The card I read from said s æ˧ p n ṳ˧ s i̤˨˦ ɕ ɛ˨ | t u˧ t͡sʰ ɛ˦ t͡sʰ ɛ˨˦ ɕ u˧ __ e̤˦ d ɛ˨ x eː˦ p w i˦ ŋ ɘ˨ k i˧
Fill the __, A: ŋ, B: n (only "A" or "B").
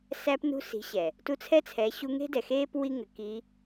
A